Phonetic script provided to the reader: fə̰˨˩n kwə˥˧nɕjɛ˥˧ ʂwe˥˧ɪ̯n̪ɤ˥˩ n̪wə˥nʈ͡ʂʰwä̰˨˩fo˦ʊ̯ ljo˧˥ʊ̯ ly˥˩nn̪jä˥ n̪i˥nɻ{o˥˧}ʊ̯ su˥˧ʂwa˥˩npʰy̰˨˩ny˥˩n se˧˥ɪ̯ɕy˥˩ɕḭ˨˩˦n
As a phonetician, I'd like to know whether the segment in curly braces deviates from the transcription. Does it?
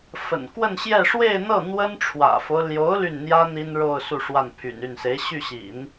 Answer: no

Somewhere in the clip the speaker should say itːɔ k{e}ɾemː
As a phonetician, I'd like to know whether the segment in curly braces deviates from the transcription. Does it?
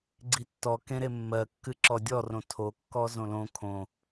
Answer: yes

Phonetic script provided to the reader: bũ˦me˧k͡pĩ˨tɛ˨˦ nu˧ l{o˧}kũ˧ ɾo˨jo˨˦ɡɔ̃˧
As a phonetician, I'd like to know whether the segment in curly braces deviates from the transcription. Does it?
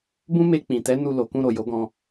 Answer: yes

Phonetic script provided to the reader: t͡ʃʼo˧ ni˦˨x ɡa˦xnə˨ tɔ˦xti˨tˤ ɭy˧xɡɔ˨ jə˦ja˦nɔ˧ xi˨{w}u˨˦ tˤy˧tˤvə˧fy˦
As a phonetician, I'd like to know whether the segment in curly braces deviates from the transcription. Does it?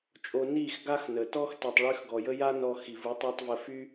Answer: yes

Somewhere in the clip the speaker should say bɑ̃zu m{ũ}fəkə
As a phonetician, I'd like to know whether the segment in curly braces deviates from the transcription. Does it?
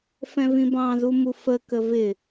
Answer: yes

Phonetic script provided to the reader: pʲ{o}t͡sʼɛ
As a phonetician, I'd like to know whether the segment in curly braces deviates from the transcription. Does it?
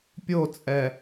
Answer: no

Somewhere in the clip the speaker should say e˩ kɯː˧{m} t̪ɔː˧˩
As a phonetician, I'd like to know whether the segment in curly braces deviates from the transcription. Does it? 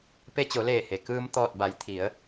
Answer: no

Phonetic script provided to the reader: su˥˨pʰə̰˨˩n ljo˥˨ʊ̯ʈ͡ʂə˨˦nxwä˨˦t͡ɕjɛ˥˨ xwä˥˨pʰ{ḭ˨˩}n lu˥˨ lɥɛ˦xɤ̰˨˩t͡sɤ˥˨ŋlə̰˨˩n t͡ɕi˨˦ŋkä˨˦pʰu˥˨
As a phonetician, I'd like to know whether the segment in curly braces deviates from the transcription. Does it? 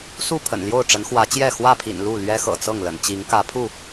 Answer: no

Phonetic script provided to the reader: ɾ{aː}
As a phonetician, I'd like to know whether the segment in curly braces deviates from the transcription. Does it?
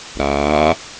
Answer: no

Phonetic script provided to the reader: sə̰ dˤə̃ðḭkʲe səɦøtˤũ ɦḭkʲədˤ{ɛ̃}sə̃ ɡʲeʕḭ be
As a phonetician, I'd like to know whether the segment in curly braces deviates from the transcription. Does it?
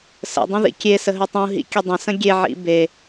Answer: yes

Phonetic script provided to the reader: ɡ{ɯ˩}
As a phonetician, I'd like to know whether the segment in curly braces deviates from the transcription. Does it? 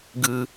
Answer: no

